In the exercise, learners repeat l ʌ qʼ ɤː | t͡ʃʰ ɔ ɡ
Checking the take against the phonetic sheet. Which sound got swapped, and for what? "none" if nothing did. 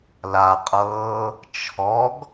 ʌ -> a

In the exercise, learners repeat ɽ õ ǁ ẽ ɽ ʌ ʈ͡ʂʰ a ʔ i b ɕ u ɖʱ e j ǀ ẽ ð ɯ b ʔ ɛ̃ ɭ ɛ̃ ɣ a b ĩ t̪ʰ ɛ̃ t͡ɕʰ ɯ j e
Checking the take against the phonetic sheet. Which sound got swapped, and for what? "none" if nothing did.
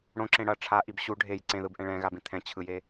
none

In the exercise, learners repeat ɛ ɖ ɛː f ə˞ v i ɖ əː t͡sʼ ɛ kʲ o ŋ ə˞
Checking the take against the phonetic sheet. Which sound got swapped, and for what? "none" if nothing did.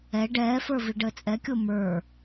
ŋ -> m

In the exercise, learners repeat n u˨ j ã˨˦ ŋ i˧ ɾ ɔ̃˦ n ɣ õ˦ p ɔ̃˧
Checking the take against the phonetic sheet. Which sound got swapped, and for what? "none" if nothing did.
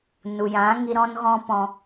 õ˦ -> ɔ̃˦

